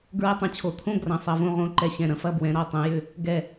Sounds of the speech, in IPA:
ɡɹɛ˥tˤɐ̃˧t͡ɕʰo˧ t̪ʰõ˥ ɡrɐ̃˩˧sˤɐ˩˧võ˧ʁõ˩˧ ǃɛ˧˩ɕɛ̃˧˩ɾɐ̃˥fɐ˥˧ bwɛ̃˩˧ɾɔ˧˩tˤɛ̃˩˧jʏ˧˩ | ɡɛ˧˩

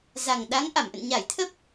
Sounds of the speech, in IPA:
za˨˩ŋɗa˨˦ŋ ʔa˧˩mʔə̰˧˨n ɲa˧˩jt̪ʰə˦˥p̚

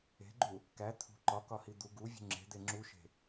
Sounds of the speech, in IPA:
e̤ɡ͡ǃu | kæ t̪ʰṳ ǃɒkɒhi d̪u ɡuvʲṳ ŋ͡ǁe̤d̪e ŋ͡ǁuʃe̤

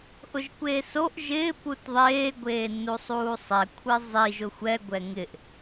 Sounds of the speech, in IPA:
ʔʊʒkʷeːsoʔ ʒɪː putðˤeː ɡʷeːnːusˤuːsˤɛ kʷʰɪzˤi ʒʊxʷɛ ɡʷɛŋɪʔ

